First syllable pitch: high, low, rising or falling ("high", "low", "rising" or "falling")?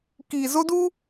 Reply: low